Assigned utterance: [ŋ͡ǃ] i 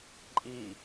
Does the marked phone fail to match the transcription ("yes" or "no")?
yes